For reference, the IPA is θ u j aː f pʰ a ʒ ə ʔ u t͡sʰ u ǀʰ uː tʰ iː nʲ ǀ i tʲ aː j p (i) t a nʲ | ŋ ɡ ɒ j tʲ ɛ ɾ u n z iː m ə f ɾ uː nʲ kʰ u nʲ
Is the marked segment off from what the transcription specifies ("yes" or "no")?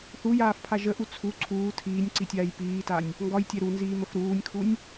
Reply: yes